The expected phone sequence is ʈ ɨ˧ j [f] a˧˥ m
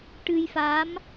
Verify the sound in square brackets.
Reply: correct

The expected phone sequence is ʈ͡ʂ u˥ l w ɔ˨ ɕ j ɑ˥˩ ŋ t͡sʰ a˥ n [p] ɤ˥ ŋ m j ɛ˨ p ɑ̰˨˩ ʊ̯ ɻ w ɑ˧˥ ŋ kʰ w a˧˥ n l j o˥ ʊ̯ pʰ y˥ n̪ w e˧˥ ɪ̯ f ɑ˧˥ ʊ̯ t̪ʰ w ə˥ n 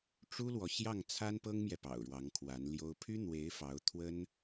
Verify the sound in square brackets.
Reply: correct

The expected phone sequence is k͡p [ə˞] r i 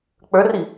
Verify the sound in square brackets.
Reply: correct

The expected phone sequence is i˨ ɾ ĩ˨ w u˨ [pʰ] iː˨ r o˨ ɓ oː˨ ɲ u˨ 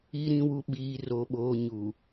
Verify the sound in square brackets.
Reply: incorrect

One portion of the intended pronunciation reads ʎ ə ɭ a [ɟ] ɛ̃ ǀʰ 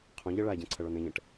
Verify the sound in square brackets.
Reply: correct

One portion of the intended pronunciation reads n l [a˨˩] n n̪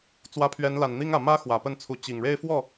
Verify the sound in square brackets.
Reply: correct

